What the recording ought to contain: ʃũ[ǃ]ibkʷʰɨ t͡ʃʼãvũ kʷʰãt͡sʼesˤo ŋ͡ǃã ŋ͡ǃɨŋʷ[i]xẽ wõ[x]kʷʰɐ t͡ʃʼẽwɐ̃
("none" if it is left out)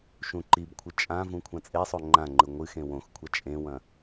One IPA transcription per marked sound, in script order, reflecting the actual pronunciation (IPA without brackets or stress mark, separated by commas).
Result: ǃ, ɨ, x